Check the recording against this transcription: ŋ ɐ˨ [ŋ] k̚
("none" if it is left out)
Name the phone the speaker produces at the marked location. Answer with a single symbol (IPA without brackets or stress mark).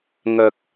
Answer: none